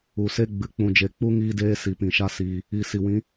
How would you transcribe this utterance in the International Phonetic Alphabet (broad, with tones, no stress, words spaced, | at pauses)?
u˨se˦ ɡ͡bɨ˨k͡pũ˨d͡ʒe˨k͡pu˦ ŋiː˦deː˦ si˨pĩ˨ʃa˦siː˧ | i˨ si˨wĩ˨˦